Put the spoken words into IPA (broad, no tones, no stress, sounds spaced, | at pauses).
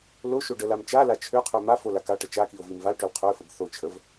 l o ʃ o ɖ ə l a m t͡ʃ a l a t͡ʃʰ ø qʰ ø m a f o l a k a ʈ ə t͡ʃ a k i o̯ v i m v a l ʈ ø l qʰ ø f ə b θ o t͡ʃʰ ə v